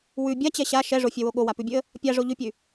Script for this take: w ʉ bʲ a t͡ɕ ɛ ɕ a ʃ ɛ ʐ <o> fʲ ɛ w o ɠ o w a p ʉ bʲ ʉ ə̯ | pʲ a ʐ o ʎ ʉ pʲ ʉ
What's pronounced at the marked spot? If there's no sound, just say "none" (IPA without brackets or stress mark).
o